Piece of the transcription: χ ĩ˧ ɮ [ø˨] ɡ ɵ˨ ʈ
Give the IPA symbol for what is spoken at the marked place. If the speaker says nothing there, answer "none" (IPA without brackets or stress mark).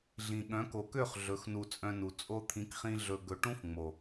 ɵ˨